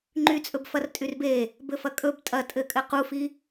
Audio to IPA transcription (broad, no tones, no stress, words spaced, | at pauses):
ŋ͡ǃyt͡sʼɵb fɐrtʼyrbe | bɘfɐkʼɵb tʼɐ tʼɘkʼɘ qufi